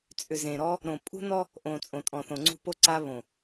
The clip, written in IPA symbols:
t͡sʼ ʏ˨ z ẽ˨ ɾ ɔ˦ | ɾ õ˨ pʼ ṳ˦ n ɔ˦ | ʔ õ˨ t͡sʼ õ˨ tʼ ɔ̃˨ θ õ˨ ŋ͡ǀ ṳ˦˨ p o˦ ǀ a˦ β õ˨

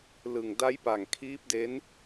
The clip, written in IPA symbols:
l ɯ˨˩ ŋ d a˦˥ j p a˨˩ ŋ kʰ iː˦˥ p̚ d e˦˥ n

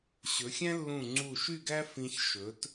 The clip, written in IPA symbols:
ɕ ɵ˩˧ xʲ æ̃˥ lː ũ˧˩ ŋ͡ǀ u˧˩ ʃ y˥˧ ɡ æ˥ f ĩ˧ ç ʃ ɵ˩˧ t

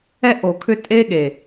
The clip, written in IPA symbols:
ɛ˦ ʔ o˨ kʰ ʏ˦ tʼ e˦ ɠ e˨

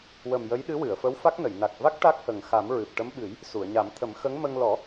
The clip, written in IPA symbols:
w ə˨˩ m j ə˧˥ j ɗ ɨ˧˥ w ɨ˨˩˨ ə̯ f ə˧˥ w f a˦˥ k̚ n ə˨˩˨ j n a˨˩ k̚ v a˦˥ k̚ ʈ a˦˥ k̚ h ə˨˩ ŋ x a˨˩˦ m ɹ ɨ˨˩ p̚ ʈ ə˧˥ m ɓ ɨ˨˩˦ j | s u˨˩˨ ə̯ ɲ a˨˩˦ m t̪ʰ ə˨˩˦ m x ə˧˥ ŋ m ə˧ ŋ l ɔ˨˩˦

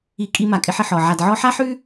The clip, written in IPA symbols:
i˧ kʼ i˧ m a˨ kʼ ɪ˧ ħ ɪ˨ ħ ɔ˨ ʕ a˨ d ʕ ɔ˧ ħ a˦ ħ ʉ˦

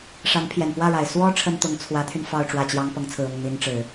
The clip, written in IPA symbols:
ʂ a˧˥ n pʰ j ɛ˨˩ n p w ä˥˩ ɻ a˨˩ ɪ̯ s w ɔ˥ ʈ͡ʂʰ ə˥ n t̪ ʊ˧˥ ŋ t͡sʰ w ä˧˥ t̪ʰ y˧ n f ɑ˥˧ ʊ̯ ʈ͡ʂ w ä˥˩ t͡ɕ j ɑ˥ ŋ p ɤ˧˥ ŋ t͡sʰ ɹ̩˨˩ ʊ˥˩ ŋ n̪ i˧˥ n ʈ͡ʂ ɻ̩˨˩˦

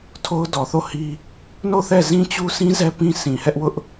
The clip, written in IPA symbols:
tʰ o˦ ʊ̯ d ɔ˨ θ o˦˨ h i˦ | n o˦˨ θ ɛ˦˨ z ĩ˦ t͡ɕ u˦ sʰ ĩ˦ z ɛ˦ p ĩ˦ s ĩ˨ h ɛ˦ ʔ w ʊ˦ ʔ

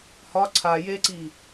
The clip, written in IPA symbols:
h ɒ ǀʰ a j e ǀ i

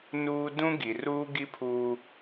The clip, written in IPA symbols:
n uː˦ d ũ˦ ɡ i˨ r uː˦ ɡ i˦ pʰ uː˦

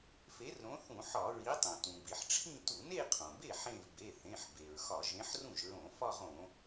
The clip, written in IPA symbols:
f e˨˥ r ɾ õ˨˥ θ ũ˧˩˧ ħ ɒ˧˩˧ ɹ i˨˥ tˤ õ˩ t ũ˩ b i˩ ħ ʈ͡ʂʰ ĩ˥˧ t u˧˩˧ n e˥˧ qʰ õ˩ b e˥˩ ħ ẽ˥˧ v b e˩˧˩ θ ẽ˩˧˩ ħ b e˩ ɹ x ɒ˧˩˧ ʒ ẽ˨˥ ħ r ũ˥˩ ʒ ɹ õ˧˩˧ f ɒ˥˧ ʁ õ˧˩˧

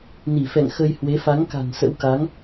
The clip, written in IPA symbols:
n i˧˩ f ɛ̰˧˨ ŋ x ə˧ j h w e˨˦ f a˨˦ ŋ k a̤˨˩ n s ə̰˧˥ w k a˨˦ ŋ

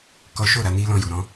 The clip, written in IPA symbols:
k ɔ˦ ʃ o˦˨ ɾ a˨˦ n i˦ l ɔ̃˧ j u˨ ɾ ɔ̃˧

